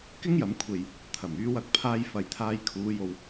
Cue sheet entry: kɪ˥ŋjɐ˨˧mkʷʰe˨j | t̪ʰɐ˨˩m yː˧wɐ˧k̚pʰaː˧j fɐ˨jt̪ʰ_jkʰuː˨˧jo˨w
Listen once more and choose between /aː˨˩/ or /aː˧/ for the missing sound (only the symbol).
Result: aː˧